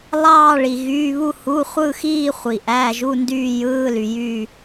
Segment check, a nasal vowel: absent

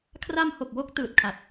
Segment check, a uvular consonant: absent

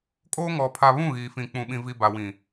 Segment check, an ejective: present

